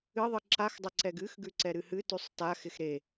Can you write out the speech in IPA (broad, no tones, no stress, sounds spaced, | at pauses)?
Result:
ɨ ðˤ ɨ ǁ a x dˤ ɐ ǀ ɛ ɡ ɨ x ɡ ʉ ǀ ɛ ɾ ɨ h ɨ t ʉ sˤ t a x ɪ x ɾ e